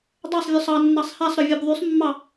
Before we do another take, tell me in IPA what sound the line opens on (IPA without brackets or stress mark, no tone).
dˤ